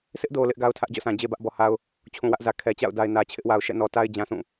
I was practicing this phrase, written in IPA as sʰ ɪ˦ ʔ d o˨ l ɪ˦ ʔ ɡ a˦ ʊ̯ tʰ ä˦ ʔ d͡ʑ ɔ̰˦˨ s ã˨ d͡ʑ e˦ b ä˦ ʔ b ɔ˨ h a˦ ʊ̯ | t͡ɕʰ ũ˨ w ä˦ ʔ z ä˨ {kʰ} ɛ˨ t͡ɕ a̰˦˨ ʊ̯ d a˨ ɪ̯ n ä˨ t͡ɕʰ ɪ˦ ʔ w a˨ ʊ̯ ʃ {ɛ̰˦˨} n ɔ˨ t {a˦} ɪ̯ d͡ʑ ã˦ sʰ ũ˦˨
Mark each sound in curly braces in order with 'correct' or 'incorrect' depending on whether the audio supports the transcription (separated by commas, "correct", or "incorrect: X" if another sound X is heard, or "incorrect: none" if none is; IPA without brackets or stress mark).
correct, correct, correct